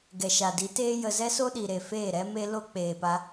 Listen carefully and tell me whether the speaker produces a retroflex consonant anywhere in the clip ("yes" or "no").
no